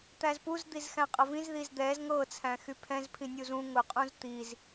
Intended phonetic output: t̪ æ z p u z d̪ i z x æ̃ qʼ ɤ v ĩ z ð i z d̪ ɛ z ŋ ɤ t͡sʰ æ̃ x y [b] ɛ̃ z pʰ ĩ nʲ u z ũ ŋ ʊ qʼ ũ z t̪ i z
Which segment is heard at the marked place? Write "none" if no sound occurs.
pʰ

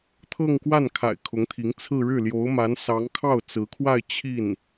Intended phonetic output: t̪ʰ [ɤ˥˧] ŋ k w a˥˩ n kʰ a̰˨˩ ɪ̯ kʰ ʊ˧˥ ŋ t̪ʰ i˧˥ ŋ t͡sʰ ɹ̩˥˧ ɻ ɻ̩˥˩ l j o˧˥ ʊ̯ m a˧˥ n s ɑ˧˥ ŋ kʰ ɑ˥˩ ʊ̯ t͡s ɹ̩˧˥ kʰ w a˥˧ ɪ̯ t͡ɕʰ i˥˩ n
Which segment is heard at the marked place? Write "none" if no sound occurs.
ɤ˥˧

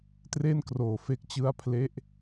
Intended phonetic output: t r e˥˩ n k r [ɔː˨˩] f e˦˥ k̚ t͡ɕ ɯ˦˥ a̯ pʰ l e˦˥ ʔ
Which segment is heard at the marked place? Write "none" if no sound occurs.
oː˨˩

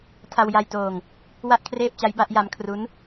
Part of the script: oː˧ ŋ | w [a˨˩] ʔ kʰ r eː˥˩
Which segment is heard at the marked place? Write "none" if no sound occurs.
a˥˩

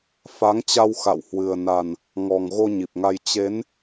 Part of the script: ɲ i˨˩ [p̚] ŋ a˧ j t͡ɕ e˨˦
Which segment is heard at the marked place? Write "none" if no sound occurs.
p̚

